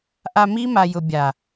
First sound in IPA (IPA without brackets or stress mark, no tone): ʔ